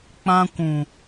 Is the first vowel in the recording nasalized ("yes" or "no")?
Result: yes